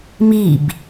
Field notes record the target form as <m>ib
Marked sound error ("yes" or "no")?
no